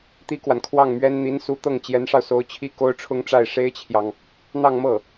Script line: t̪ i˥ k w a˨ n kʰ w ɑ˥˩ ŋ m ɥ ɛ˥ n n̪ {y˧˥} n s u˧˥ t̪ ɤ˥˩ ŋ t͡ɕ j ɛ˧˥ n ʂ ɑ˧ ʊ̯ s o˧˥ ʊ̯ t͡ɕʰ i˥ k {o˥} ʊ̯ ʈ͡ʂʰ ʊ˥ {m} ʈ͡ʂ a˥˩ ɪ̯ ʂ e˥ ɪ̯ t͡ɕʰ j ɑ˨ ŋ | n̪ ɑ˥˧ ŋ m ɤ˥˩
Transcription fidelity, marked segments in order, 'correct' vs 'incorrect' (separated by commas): incorrect, correct, incorrect